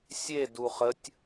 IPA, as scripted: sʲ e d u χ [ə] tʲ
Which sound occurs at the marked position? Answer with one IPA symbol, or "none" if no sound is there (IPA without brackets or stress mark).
ə